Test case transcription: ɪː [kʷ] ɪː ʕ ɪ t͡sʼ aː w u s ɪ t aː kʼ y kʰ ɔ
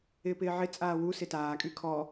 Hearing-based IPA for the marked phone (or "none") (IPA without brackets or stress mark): p